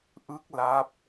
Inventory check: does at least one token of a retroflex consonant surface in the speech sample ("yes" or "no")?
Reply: no